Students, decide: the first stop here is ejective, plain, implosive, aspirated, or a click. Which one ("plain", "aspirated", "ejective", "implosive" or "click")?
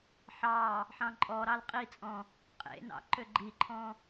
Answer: click